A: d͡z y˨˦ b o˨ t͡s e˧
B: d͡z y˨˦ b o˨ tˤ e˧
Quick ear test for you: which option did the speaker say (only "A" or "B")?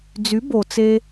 A